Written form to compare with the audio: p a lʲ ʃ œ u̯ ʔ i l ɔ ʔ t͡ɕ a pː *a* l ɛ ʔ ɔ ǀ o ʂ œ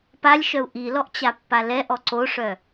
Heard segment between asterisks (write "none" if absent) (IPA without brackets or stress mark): a